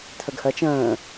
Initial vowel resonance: oral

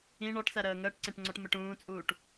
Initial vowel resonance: nasal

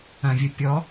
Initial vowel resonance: nasal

